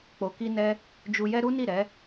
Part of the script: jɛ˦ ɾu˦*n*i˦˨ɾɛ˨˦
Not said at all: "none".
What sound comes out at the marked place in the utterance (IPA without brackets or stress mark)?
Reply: n